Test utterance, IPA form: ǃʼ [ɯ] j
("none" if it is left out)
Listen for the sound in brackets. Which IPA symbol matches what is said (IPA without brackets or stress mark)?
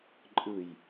ɯ